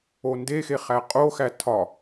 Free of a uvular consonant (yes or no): no